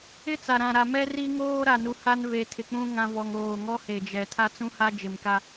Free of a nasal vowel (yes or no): no